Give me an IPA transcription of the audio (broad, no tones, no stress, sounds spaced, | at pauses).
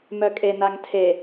m œ kʼ e n a ŋ tʰ e